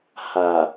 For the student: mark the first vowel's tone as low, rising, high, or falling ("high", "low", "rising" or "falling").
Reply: low